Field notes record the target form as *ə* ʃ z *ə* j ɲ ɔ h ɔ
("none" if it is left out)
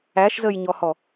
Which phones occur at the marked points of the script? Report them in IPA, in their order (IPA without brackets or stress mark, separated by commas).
æ, ə